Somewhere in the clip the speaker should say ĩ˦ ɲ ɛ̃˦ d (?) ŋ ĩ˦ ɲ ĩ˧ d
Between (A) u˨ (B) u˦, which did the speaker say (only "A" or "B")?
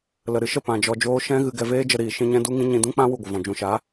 B